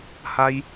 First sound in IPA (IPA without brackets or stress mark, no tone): h